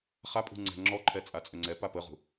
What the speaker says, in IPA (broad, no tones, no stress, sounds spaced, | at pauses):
χ a pʼ ṳ ŋ͡ǀ ɛ̤ ŋ͡ǁ ɔ ǃʰ ɛ t͡sʼ a t͡sʼ ø ŋ͡ǀ ɛ p a p ə ʁ ṳ